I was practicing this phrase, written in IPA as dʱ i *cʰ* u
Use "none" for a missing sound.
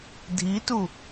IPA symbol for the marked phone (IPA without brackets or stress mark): t